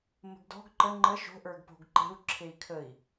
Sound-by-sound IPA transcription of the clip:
mə̤ɡdɔ̤ɡ ǃə ŋ͡ǃə ʃo̤ʔə˞ɡ po̤ɡǃe̤u̯ ǁʰei̯kʰəi̯

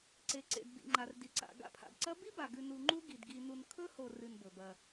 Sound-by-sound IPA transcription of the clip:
ǀe˩ǀḛ˩d bḭ˩ŋ͡ǃa˩r di˩ǀa̰˩ ɡa̰˦pʰa̰˩bǀɐ˥ bi˥ba˩ɡʉ˨ nu˨ŋ͡ǃu˦ ɡi˩dɡi˨nu˨n kʰɵ˥ho˨ rɨ˨nbɵ˩bɐ˨

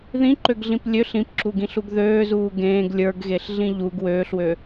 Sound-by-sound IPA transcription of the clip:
ðĩǃøɡɮĩp lʲøɬ ĩpǁuɡĩɬuɡ ðøːzuː ɡẽːɡ lʲə˞ɡɣeɬɮĩ ʎuɡ wøːɬwø

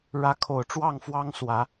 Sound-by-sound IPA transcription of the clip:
ɻä˨˦ kʰo˨˩ʊ̯ ʈ͡ʂwɑ˥˨ŋfwɑ˦ŋswä˨˦

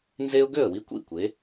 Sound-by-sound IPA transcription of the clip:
nze˦ʊ̯ɡø˥˩ə̯wi˦ kʷḭ˥˩ kʷe˨˦

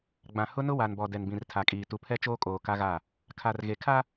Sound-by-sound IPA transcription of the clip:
ɡ͡bã˨ hʊ˦nʊ˦wa˨nbɔ˨ dɛ˨nbĩ˨rtʰa˨kʼiː˨ tu˨pʰɛ˦t͡ʃoː˦kʼoː˨ ka˦ɣa˦˨ | kʰa˨rɣe˨kʰa˦

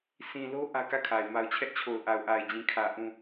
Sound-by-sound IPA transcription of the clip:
sĩ˨ lo˦ ʔä˦kä˦˨kʰa˨ɪ̯ ma˨ʊ̯t͡ɕʰɛ˦ʔt͡ɕʰo˨ʊ̯ ʔa˨ʊ̯ʔa˨ɪ̯d͡ʑĩ˨kʰä˨ ʔũ˨

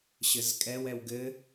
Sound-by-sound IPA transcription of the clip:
ɕɘzkʼɛwɛw ɡɘ

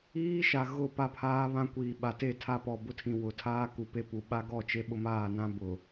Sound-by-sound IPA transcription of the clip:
iː˦ʃa˨ ɣʊ˦˨ pa˦pʰaː˦βã˦ kʷiː˨ɓa˨te˦˨ tʰa˦pɔ˨bʊ˦tʰĩ˨ wʊ˨tʰaː˦ku˨ pe˦pu˨ ɓa˦ɡɔ˦˨ t͡ʃe˦ɓʊ˦maː˦˨nã˦ bʊ˨

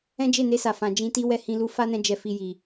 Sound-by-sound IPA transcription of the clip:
ɛ̃˦d͡ʒe˦˨ne˧sa˨ fã˨d͡ʒĩ˧ ti˦wɛ˦˨hĩ˧ lu˧fa˦nɛ̃˧ d͡ʒɛ˧fi˧ji˨

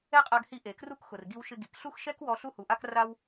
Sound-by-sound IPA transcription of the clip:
ɛ˥qʼa˧ɡhi˧ ʔe˩kru˥kxʊ˩r ɡi˧wʃɪ˧ ɡi˩kɬu˥xʃɛ˥kwɔ˧ ɬu˥hu˩ʔa˥k ra˥w

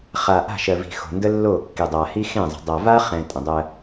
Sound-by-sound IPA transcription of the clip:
χa˨ʔa̤˦˨ ʃɜ˨vi̤˨xo̤˨ ndə˦lːo˦˨kːi˨ dˤa˨ hi˦xẽ˦˨zˤə̤˨ dˤa˨va˦ χɛ̃˨ tʼə̃˨dˤɜ˦

